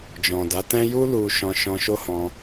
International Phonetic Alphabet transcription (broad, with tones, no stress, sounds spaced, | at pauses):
d͡ʒ ɔ̃˨ d a˨˦ t ɛ̃˦ j u˦ l u˦ ʃ ɔ̃˧ ʃ ɔ̃˧ ʃ o˦ h ɔ̃˧